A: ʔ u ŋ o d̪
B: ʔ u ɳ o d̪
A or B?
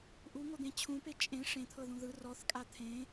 A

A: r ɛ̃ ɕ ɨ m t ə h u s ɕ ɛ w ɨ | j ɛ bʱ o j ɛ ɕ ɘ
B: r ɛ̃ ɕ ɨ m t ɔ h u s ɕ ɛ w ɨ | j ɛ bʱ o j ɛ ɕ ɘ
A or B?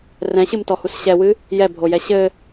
B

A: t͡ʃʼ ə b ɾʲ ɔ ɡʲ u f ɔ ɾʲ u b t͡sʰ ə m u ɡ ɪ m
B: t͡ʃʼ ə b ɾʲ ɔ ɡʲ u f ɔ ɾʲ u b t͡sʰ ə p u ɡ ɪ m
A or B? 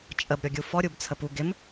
B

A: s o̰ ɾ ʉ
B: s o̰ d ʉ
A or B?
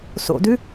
B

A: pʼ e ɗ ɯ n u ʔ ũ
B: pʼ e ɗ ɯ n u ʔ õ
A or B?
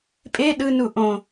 B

